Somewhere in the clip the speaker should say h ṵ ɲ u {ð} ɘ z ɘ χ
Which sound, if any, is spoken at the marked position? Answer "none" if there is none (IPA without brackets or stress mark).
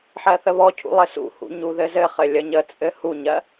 ð